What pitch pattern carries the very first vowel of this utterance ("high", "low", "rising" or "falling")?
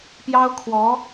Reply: high